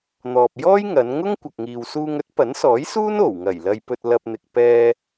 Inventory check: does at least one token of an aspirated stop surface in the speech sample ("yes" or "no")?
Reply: no